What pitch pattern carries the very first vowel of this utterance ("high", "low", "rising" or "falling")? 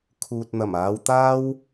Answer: low